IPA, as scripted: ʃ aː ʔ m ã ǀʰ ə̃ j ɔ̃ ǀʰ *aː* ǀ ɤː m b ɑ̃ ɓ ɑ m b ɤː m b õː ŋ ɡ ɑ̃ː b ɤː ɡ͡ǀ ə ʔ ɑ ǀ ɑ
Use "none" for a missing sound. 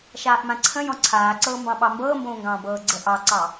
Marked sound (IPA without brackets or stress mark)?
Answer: aː